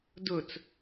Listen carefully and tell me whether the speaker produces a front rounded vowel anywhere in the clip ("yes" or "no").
no